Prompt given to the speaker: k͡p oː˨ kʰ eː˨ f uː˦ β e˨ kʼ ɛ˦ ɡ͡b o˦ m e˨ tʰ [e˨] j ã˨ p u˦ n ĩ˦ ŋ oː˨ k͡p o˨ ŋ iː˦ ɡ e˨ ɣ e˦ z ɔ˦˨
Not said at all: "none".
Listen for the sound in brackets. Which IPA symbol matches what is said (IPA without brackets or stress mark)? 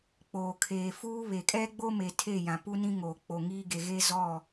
e˦˨